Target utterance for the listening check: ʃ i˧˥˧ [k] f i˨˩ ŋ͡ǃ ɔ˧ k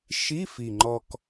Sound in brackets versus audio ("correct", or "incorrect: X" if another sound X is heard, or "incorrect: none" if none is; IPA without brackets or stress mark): incorrect: none